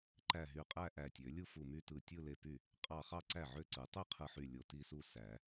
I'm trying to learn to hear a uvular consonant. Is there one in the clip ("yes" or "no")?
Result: yes